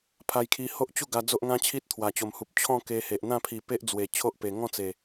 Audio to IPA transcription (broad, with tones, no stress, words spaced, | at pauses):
pʰa˧jkʰi˧ ho˦ʔt͡ɕu˥˧ɡa˧ d͡zo˦ʔŋã˦t͡ɕʰi˦t̚ t̪ʰwa˨˩t͡ɕo˨˩mhu˨p̚ t͡ɕʰɔ̃˥˧ ke˧he˨ʔ n̪ã˥˧pʰi˨˩ pe˦ʔd͡zwe˨˩ t͡ɕʰo˦ʔpe˨˩ ŋɔ̃˥˧t͡se˨˩